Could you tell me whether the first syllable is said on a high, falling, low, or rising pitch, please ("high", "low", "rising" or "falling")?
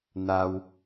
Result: high